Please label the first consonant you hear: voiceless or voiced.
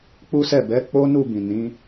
voiceless